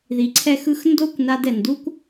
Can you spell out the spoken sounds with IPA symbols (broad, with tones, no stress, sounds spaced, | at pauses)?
ð i˧ ǀʰ ɛ˦ x ɯ˦ x n d o˦ kʷ n a˧ d ɛ˨ n d u˦ kʷ